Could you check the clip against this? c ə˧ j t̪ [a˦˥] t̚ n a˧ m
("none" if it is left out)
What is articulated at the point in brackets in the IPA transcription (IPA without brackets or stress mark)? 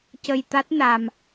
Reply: a˦˥